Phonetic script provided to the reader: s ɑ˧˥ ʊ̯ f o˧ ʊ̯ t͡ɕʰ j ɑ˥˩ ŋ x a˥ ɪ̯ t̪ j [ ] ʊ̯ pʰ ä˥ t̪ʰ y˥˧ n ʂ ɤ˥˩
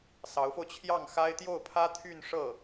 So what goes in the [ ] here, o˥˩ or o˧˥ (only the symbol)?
o˥˩